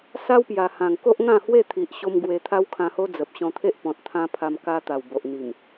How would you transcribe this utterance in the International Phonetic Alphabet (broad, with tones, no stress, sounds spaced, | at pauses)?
s a˦ w p j a˨˩ h ã˨˩ ŋ k o˦ ʔ ŋ ã˥˧ h w e˥˧ t̪ʰ i˨ ʔ ɕ o˧ m ɡ w e˧ t̪ʰ a˦ w kʰ ã˧ h o˦ d͡z ə˨ p̚ ɕ ɔ̃˧ t̪ʰ e˦ ʔ p ɔ̃˨ t̚ t̪ʰ ã˧ pʰ a˧ m k a˧ t̪ a˨˩ w b o˨ ʔ n̪ i˨˩ m